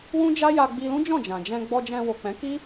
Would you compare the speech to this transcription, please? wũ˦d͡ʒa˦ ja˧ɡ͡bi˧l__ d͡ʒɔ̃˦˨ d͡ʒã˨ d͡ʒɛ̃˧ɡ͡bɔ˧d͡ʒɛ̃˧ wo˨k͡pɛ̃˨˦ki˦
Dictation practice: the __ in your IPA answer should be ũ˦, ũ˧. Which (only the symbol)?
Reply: ũ˦